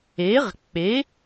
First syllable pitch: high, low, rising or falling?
rising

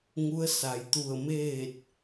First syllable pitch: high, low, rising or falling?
rising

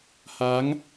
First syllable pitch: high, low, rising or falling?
rising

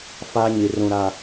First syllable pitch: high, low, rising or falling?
high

